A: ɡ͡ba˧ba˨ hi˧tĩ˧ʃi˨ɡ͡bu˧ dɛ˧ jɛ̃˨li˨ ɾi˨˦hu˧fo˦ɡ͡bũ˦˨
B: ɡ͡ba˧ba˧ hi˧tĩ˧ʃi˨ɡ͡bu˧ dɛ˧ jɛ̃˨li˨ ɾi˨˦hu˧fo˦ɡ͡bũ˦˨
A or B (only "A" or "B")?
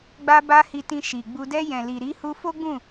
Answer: B